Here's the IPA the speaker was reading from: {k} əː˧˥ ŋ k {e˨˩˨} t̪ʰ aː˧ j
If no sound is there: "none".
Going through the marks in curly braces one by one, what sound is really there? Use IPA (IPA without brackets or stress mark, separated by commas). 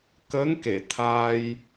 k, e˨˩˨